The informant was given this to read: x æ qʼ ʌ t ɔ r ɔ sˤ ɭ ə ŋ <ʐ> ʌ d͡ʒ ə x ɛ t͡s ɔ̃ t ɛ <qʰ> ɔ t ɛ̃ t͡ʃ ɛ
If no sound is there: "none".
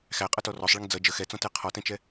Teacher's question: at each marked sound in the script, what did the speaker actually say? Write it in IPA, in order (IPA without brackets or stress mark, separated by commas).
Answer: d͡z, qʰ